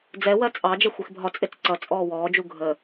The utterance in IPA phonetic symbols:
d͡z ɛ w ɜ t͡sʼ ɑ d͡ʒ ɛ xʷ i x bʱ ɒ t͡sʼ ɪ t͡s ǀ ʌ t͡sʼ ɔː w ɔː d͡ʒ u ɡʱ ə

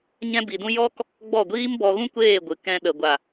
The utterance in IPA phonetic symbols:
ɲ ɛ̃˦ b i˧ d ũ˦ j ɔ˦ k | ɡ͡b ɔ˦˨ ɡʷ iː˦ m b ɔ˧ ɣ ũ˦ kʷ eː˦˨ ɡʷ ɨ˨ k ɛ̃˧ ɗ ə˨ ɡʷ a˨

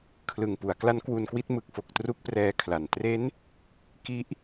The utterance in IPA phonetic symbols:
kʰ l ɯ˨˩ ŋ p u˩˦ a̯ k l a˦˥ n k w u˧ n k w i˥˩ t̚ m ɯ˨˩ k̚ f o˨˩ k̚ t r u˦˥ k̚ p r ɛː˧ kʰ l a˨˩ n t r e˦˥ n | k i˦˥ ʔ

